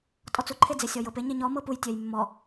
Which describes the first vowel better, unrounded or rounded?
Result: rounded